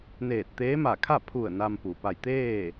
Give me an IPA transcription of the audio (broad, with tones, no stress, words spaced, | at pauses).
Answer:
neː˧˩t̚t̪eː˧˥ma˧˩kʰa˥˨ pʰu˧˩ə̯ na˧m pu˩ pa˧˩jt̪eː˥˨